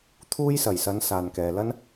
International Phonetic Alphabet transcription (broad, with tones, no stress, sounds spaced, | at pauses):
t̪ʰ uː˥ j s ɐ˨˩ j s ɐ˨˧ n s aː˨ n k ɛː˨ l ɐ˥ n